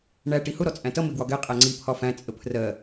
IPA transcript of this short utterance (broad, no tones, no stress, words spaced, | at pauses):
ɳæ ʈihʊ ɾɔt͡sʼæ̃tʌ mɪɡwɒɡɛ qʼæŋ͡ǀi pʰɒfæ̃ t͡sʼəpʰrɜ